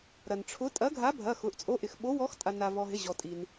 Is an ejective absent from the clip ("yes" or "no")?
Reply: no